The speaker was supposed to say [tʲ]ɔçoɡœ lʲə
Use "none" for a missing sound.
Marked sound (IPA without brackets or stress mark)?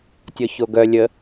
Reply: tʲ